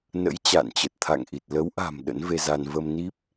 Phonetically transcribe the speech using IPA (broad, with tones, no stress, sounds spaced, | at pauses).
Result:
n ə̰˧˥ j t͡ɕ a̰ː˧˨ n t͡ɕ ə˨˩ t̚ t̪ʰ a̰˧˨ ŋ ʔ i˨˩ t̚ l ə˨˦ w ʔ a̤˨˩ m ɗ ə̰˧˥ n v e˧ z a˧ n v ə˧ m n i˦˥ p̚